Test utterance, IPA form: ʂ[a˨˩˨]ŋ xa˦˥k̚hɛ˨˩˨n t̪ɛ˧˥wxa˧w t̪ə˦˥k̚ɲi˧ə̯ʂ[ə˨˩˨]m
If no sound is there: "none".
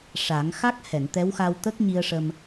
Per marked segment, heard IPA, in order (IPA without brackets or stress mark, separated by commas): a˨˩˦, ə˧